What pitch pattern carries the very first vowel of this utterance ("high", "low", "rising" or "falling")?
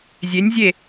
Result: rising